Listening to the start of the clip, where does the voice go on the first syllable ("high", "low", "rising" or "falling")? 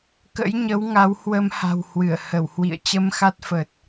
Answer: rising